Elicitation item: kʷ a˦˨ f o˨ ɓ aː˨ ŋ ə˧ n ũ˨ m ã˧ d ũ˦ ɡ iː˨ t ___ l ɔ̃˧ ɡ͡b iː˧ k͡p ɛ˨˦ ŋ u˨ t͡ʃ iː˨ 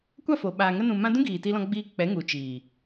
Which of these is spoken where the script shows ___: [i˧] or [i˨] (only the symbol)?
i˧